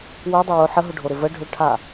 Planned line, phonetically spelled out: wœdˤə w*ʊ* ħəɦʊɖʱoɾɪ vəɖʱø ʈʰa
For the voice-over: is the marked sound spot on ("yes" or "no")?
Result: yes